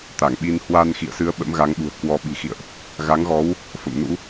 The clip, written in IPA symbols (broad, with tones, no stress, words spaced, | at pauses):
t̪a˧˩ŋɓi˧n hwa˧nxḭ˧˨ə̯sɨ˨˦ə̯ ɓə̰˧˥mɣa˨˦ŋɓṳ˨˩ə̯ kwɔ˨˦ɓi̤˨˩xḭ˧˨ə̯ʔ | ɣa˨˦ŋɣɔ˨˦w | fə̰˧˨mnṵ˧˥